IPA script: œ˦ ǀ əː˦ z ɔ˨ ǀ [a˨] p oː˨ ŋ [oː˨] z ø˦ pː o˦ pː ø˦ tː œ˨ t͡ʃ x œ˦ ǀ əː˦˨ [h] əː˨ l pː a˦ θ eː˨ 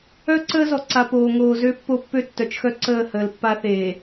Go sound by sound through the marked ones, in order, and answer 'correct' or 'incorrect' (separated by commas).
correct, correct, correct